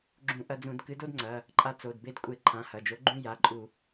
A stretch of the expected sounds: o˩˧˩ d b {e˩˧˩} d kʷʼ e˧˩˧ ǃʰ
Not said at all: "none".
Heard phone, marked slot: e˧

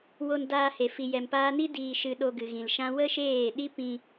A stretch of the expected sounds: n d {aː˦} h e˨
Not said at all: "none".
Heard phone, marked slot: aː˧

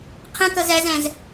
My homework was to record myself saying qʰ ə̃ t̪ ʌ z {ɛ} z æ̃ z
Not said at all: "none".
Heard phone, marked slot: æ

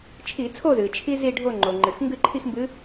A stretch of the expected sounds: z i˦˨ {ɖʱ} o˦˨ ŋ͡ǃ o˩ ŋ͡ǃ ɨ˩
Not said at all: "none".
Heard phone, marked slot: ɖʱ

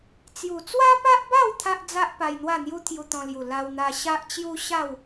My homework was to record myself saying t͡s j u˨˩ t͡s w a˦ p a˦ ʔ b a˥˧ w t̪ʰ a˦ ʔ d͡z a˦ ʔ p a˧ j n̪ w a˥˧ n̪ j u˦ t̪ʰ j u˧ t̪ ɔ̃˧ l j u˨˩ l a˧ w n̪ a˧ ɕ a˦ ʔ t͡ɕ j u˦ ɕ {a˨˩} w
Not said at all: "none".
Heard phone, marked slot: a˥˧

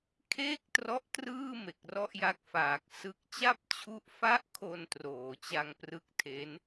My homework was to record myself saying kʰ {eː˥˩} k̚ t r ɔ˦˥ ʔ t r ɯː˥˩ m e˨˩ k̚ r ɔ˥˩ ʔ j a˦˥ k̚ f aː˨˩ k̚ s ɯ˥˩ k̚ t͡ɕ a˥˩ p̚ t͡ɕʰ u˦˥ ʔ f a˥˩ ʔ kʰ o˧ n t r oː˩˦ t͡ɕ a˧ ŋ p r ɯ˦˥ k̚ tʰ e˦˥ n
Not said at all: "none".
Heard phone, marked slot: eː˥˩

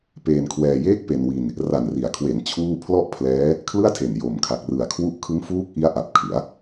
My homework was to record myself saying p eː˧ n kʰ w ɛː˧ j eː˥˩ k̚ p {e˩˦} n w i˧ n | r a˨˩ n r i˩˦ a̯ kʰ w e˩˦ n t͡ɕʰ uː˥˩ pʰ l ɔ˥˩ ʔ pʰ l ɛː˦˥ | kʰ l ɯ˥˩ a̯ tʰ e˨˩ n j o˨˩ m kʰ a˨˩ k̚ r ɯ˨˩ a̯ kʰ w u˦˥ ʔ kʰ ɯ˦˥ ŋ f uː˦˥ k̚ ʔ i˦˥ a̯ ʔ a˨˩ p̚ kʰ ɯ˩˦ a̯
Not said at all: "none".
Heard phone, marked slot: e˧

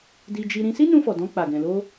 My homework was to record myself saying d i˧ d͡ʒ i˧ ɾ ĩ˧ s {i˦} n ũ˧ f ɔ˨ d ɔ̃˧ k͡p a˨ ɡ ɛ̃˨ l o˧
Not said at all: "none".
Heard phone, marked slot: i˦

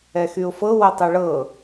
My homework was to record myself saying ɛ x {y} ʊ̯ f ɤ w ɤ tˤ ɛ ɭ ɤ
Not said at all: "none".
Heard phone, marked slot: y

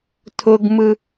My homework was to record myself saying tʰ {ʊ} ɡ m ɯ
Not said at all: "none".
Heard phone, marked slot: ʊ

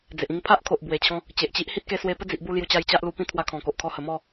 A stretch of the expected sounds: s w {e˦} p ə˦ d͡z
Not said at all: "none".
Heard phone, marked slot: e˧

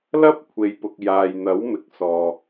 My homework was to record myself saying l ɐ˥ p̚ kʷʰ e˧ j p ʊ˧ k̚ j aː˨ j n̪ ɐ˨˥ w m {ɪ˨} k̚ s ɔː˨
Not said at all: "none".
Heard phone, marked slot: ɪ˨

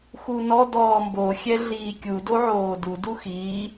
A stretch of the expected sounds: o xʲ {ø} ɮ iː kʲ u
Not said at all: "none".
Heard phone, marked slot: ɛ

